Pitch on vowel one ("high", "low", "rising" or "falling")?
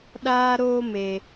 high